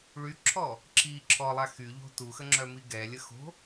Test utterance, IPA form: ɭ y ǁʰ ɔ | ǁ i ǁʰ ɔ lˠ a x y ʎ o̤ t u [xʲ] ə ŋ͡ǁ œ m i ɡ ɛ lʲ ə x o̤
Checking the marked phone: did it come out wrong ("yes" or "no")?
yes